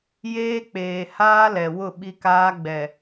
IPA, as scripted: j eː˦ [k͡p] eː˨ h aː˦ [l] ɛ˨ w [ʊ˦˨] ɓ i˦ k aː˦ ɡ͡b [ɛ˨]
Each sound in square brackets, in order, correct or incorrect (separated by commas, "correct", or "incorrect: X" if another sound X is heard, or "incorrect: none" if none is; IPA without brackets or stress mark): correct, correct, correct, correct